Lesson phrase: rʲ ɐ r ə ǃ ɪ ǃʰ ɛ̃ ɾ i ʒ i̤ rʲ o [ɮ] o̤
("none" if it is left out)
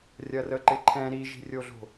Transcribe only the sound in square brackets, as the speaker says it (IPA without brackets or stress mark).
ɮ